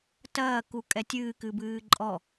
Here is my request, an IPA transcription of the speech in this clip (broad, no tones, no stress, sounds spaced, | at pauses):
t ɐː k u kʼ ɛ tʲ ɨː k ɨ b ɨː ǃʼ ɔ